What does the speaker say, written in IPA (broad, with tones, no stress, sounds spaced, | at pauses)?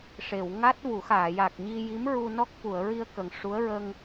ʂ e˨˩˨ w ŋ a˦˥ t̚ v u˨˩˦ x aː˨˩˨ j a˨˩ k̚ ɲ i˧ j i˧˥ m ɹ u˧ n ɔ˦˥ k̚ f u˨˩˨ ə̯ ɹ i˧ ə̯ k ə˨˩ ŋ ʂ u˧˥ ə̯ ɹ ə˧ ŋ